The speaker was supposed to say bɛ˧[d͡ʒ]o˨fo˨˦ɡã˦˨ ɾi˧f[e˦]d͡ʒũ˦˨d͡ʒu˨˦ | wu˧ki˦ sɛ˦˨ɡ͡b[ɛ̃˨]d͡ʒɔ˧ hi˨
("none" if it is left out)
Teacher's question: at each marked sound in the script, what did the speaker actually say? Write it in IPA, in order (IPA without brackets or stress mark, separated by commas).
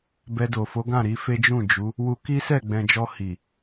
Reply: d, e˦, ɛ̃˨